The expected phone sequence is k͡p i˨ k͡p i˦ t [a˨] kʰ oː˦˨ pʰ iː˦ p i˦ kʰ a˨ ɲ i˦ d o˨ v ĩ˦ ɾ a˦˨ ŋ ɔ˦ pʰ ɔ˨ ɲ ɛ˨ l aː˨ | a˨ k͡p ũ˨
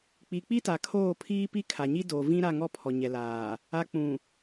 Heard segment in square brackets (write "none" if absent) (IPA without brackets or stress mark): a˨